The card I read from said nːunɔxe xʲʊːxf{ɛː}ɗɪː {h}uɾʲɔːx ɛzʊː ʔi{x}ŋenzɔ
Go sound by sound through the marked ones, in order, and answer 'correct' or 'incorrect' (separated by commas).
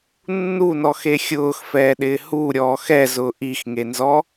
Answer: correct, correct, correct